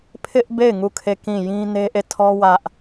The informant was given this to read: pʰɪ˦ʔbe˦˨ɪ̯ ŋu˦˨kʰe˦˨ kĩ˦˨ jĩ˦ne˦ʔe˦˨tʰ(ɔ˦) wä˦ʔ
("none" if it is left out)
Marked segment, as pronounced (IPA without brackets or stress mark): ɔ˦